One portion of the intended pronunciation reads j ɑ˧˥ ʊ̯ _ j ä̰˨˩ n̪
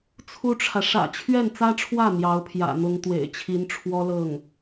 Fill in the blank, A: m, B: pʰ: B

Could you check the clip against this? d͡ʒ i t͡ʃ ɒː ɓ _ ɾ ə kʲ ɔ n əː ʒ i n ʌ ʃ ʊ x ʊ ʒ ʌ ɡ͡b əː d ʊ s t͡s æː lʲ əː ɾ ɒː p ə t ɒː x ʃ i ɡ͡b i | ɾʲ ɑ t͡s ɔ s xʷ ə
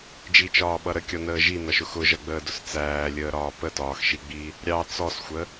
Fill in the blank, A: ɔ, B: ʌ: B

